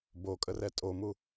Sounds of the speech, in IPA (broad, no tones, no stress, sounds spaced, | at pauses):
b o kʼ ə r ɛ tʼ o m u